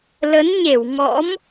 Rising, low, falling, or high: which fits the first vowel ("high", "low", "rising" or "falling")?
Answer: rising